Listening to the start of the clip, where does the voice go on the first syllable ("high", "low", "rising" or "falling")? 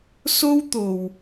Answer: high